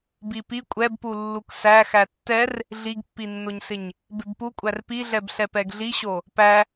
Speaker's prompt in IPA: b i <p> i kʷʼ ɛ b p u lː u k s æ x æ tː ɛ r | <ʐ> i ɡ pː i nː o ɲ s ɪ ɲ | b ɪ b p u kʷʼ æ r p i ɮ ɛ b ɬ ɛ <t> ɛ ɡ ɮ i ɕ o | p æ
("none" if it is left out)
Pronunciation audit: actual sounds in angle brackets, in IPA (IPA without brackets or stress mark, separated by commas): p, ɮ, p